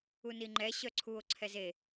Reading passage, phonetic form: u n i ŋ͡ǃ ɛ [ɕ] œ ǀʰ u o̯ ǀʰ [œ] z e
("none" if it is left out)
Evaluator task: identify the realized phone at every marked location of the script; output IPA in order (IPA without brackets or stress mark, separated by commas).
ɕ, ɛ